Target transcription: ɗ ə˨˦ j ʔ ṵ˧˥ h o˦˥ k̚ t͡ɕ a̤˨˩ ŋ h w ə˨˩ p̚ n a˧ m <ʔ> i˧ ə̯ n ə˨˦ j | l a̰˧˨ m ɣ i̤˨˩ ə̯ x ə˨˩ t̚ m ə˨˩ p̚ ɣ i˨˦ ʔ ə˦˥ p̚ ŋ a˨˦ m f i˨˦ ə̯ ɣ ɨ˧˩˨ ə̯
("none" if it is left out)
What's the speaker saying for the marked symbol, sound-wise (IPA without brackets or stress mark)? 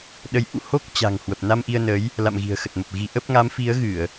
ʔ